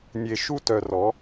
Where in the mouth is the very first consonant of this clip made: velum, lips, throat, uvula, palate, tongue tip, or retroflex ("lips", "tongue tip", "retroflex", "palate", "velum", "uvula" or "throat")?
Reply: tongue tip